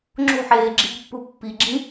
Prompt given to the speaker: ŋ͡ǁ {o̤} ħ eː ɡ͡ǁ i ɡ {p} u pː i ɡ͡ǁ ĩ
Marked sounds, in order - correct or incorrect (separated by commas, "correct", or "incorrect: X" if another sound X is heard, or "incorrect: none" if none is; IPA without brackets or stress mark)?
correct, incorrect: pː